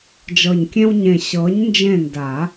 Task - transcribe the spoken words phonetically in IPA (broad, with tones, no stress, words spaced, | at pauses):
d͡ʒɤ˨˩ɲkʲẽ˦wɲẽ˨˩ ɕɤ˨˥ɲnd͡ʒẽ˦˨nda˨˩˦